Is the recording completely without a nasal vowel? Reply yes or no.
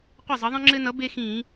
no